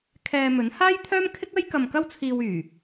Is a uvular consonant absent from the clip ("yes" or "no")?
yes